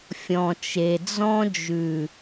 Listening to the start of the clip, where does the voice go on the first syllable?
low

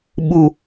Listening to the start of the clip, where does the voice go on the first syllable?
high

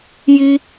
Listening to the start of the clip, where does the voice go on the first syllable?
high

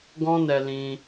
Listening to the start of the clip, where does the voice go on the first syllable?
high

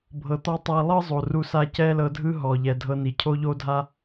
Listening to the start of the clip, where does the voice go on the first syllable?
low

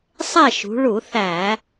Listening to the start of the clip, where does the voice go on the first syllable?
falling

